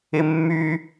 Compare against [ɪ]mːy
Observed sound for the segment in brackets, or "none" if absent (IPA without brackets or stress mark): ɪ